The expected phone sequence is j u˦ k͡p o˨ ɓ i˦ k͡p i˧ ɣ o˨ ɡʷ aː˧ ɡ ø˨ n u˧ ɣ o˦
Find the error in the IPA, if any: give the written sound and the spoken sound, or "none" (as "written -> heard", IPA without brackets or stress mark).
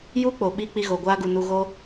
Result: ø˨ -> u˨